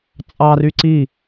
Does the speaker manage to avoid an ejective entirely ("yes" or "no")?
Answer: no